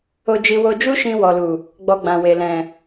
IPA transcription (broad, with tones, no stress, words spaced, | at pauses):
o˧d͡ʒi˧ wo˧d͡ʒu˦ʃĩ˧ wɔ˨lu˨ | ɡ͡bɔ˧ɡ͡bã˨we˨lɛ̃˨